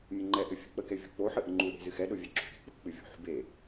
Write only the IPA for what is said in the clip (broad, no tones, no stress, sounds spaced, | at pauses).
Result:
mʲ ə ŋ͡ǃ ɛ ʔ ɘ fʲ ɨ k͡p ə k ɛ vʲ o̤ k͡p o ħ ɨ ʔ ə ŋ͡ǃ u ɗ e̤ z ɨ x ɛ ɗ o vʲ ɛ ǁ o̤ k e̤ k͡p o̤ k͡p ɨ vʲ o̤ ħ ṳ b e